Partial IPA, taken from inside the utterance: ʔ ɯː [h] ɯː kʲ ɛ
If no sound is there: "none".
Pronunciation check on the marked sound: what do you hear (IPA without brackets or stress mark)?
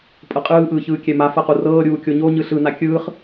ç